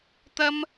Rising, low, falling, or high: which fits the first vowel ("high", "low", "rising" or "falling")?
high